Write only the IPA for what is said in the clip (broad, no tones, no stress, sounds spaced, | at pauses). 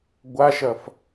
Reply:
ɡʷ a ʃ ɐ f